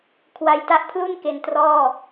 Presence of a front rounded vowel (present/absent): absent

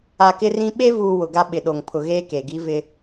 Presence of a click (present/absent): absent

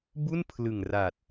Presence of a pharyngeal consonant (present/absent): absent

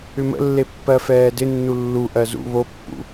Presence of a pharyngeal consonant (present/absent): absent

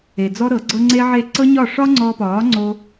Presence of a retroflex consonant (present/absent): present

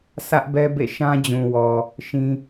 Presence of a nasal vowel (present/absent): present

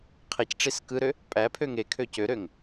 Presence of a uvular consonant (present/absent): present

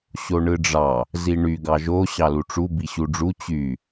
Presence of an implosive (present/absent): absent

